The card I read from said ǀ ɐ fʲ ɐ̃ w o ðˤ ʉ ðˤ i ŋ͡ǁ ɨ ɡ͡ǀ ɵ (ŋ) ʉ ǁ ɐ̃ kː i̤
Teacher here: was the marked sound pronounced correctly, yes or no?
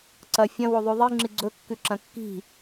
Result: no